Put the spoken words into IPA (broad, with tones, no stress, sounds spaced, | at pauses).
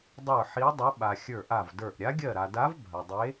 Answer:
dˤ ə˞˦˨ ħ i˧˥ dˤ ɐ˧˥ ɓ a˨ xʲ ə˞˦˨ ʔ a˦˨ v d ə˞˦˨ ʔ ɾʲ a˧˥ ɡʲ ɜ˦˨ ɾ a˨ d a˧˥ v bʱ ɐ˨ dˤ e˧˥